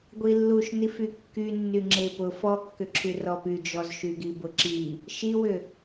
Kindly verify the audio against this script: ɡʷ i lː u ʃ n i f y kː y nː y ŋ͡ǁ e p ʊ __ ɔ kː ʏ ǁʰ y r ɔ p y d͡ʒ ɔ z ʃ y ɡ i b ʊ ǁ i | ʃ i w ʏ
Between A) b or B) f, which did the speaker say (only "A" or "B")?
B